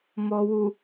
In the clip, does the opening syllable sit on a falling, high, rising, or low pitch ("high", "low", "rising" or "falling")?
low